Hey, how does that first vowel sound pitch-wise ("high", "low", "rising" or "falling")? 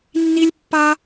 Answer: high